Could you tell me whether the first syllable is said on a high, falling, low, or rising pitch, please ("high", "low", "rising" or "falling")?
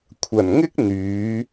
low